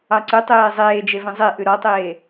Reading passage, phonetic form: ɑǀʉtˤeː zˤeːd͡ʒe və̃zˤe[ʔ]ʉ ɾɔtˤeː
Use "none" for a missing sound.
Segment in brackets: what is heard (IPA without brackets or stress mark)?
ʔ